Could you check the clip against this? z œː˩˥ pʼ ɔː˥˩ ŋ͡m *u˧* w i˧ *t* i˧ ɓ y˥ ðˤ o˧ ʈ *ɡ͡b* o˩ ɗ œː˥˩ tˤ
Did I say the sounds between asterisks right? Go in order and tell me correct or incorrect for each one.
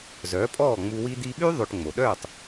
correct, incorrect: d̪, incorrect: ŋ͡m

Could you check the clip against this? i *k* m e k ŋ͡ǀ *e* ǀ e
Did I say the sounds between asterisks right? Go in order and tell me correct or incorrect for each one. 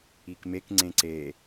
correct, incorrect: ẽ

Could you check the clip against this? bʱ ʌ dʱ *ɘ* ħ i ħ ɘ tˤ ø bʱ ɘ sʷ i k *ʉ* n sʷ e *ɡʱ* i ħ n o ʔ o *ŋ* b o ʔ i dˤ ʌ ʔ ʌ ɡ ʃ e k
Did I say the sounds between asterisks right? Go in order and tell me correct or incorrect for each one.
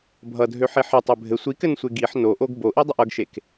incorrect: ø, incorrect: ɘ, incorrect: ɡ, incorrect: ɡ

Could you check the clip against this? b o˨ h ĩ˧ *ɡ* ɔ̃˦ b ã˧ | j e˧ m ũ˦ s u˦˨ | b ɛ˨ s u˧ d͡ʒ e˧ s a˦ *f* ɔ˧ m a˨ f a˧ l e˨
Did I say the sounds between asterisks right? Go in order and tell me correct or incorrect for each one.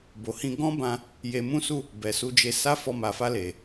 correct, correct

